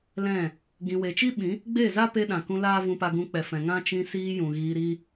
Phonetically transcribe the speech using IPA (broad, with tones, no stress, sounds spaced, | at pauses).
l ɛ̃˦˨ | ɡ ĩ˨ w e˨ t͡ʃ i˦ ɓ ĩ˨˦ | ɡ͡b e˦˨ z a˦ p e˧ ɗ ã˨ k ũ˧ l aː˦ v ũ˧ p a˧ ɡ ũ˧ k͡p ɛ˨ f ɛ̃˨ ŋ ã˦ t͡ʃ ĩ˧ s iː˧ j ũ˨ ɣ iː˧ ɾ i˦